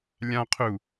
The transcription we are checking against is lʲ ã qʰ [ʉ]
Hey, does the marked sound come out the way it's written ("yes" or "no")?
no